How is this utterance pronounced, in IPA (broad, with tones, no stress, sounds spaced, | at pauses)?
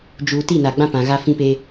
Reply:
d͡ʒ uː˨ t i˦˨ n a˨ ɡ͡b ã˦ p ã˨ ɣ a˦ f ĩ˦ p e˦